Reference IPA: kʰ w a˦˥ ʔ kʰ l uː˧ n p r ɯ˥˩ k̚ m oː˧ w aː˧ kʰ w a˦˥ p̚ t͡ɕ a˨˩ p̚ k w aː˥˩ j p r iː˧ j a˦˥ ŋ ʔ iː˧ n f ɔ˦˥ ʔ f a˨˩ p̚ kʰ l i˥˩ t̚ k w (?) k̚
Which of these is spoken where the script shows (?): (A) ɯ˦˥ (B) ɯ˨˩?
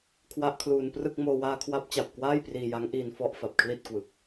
B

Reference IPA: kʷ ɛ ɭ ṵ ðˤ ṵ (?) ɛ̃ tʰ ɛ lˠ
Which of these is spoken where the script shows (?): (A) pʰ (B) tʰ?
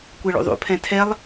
A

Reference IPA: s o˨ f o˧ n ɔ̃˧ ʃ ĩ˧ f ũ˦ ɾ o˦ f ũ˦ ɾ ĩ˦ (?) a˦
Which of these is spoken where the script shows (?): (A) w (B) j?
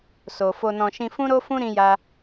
B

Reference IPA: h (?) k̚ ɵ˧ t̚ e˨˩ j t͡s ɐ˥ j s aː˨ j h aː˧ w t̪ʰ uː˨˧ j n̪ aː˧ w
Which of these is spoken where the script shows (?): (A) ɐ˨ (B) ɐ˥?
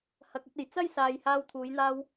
A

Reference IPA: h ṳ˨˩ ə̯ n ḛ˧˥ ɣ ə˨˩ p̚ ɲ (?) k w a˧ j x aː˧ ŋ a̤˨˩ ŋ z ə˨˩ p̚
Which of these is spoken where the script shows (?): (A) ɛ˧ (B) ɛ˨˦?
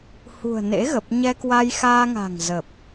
A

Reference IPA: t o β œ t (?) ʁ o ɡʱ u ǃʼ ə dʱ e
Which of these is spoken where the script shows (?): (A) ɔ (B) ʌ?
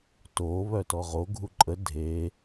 A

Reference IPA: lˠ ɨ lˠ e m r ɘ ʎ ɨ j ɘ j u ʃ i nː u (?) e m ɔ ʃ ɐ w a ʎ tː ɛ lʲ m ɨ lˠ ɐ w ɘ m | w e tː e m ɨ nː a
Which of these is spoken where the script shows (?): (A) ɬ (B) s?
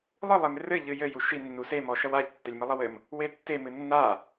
B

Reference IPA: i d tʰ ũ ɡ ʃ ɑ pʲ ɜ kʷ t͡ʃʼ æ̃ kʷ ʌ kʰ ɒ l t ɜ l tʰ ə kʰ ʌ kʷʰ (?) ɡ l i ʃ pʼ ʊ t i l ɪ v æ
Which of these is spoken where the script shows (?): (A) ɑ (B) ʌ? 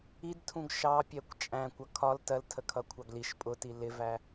A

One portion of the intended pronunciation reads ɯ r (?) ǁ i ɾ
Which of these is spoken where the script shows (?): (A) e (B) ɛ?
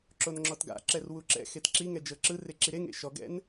A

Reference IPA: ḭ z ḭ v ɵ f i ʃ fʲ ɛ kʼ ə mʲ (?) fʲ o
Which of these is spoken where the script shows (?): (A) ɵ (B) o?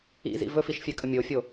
B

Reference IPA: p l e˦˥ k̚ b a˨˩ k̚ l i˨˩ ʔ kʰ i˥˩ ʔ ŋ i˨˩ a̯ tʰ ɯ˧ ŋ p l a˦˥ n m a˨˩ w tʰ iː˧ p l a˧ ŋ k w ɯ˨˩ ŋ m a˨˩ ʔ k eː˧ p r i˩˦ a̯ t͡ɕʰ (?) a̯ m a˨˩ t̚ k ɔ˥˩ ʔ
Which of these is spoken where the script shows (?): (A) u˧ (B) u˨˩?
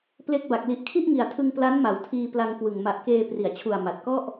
B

